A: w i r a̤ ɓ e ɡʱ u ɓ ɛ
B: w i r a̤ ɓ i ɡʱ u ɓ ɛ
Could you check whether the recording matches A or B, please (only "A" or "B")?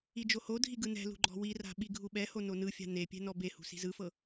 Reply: B